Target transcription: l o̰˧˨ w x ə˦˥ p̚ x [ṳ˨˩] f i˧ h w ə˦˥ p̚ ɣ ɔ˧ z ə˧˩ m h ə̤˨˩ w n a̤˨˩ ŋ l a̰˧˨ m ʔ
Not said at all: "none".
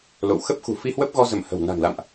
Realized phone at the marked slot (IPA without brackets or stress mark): ṳ˨˩